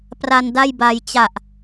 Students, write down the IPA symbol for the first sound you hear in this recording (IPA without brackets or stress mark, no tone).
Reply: p